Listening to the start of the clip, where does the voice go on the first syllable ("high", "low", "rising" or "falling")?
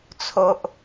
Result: low